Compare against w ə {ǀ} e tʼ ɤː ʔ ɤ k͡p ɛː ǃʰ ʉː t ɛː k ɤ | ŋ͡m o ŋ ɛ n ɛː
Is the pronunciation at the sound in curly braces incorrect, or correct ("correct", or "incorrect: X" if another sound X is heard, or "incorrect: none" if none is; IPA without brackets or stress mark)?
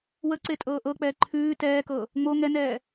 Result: correct